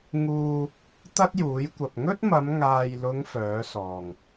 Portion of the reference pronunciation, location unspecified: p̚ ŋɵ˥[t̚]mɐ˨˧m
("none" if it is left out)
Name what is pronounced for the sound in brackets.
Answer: t̚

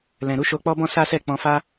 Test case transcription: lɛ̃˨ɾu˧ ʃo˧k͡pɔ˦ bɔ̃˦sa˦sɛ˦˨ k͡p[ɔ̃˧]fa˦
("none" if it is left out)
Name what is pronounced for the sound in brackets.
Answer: ɔ̃˧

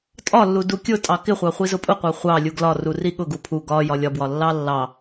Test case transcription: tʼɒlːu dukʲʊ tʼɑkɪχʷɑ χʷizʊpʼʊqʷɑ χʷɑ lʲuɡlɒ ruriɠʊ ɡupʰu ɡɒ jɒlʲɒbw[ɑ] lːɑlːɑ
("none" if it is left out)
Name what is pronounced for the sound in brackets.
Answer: ɒ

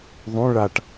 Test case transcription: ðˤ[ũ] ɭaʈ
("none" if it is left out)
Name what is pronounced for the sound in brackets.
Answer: ũ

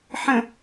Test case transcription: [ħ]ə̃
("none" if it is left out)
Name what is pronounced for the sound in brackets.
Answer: ħ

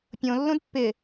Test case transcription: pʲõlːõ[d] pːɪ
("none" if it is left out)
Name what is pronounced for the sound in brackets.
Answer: d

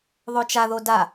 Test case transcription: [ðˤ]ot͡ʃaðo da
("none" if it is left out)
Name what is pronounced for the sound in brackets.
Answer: ðˤ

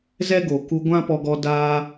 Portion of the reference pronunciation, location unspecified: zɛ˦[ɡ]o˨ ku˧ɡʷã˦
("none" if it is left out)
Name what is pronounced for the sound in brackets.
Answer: ɡ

